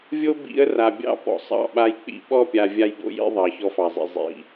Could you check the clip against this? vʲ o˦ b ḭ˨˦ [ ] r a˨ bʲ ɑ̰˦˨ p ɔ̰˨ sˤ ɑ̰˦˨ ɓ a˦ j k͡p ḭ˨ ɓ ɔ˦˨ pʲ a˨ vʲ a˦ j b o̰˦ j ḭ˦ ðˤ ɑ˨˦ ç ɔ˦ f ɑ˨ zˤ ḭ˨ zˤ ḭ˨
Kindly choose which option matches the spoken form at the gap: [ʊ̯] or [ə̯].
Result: ə̯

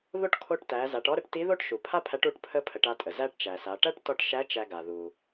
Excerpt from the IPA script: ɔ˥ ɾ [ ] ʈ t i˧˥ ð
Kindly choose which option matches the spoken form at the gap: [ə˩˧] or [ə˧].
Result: ə˧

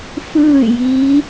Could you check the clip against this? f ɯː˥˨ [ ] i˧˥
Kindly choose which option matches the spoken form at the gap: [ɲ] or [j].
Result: j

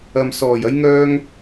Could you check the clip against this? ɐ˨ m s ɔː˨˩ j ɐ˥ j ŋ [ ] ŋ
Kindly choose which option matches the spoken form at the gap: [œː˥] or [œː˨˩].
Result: œː˥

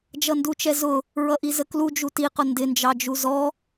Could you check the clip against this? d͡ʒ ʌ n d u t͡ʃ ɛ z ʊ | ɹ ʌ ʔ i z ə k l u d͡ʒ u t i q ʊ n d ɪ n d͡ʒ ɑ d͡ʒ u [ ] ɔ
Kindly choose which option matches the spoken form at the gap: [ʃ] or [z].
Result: z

